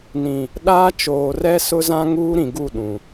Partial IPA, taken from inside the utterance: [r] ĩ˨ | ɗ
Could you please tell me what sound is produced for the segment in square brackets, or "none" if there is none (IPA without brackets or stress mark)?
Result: n